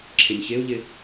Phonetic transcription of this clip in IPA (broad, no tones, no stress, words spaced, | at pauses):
ǁʰɪnʲçeu̯ʎɪ